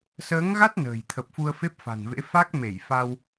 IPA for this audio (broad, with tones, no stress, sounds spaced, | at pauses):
s əː˨˦ ŋ ɣ a˦˥ t̚ n ə̤ː˨˩ j t̪ʰ ə˨˩ p̚ f u˧ ə̯ f e˦˥ p̚ f a̤˨˩ n v ḛ˧˥ f a˦˥ k̚ m e˧˩ j f a˧ w